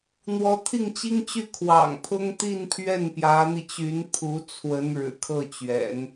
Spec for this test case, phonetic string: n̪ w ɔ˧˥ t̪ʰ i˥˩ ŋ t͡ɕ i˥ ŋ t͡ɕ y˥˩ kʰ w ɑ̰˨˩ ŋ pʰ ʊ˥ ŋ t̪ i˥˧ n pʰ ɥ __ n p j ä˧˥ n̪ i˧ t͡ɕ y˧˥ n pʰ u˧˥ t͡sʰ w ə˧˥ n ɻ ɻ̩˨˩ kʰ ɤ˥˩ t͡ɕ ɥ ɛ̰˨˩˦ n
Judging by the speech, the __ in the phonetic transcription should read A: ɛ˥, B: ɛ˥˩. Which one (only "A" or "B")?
B